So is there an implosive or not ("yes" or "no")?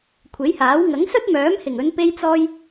no